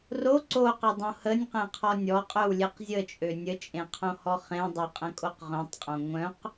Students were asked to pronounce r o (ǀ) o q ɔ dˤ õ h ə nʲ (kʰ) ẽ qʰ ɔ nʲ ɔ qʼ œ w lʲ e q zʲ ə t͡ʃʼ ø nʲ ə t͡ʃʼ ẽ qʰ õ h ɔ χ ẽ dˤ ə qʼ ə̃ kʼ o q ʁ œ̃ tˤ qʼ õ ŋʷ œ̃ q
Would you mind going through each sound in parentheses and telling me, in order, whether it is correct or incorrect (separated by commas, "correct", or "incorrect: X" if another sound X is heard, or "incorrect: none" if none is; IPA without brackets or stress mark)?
correct, incorrect: q